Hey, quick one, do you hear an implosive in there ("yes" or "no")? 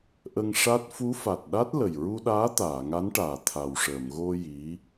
yes